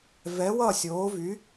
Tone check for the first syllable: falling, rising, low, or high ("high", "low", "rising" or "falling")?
rising